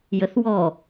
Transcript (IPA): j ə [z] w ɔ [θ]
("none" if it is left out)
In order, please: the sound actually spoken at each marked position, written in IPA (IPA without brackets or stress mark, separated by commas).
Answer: θ, none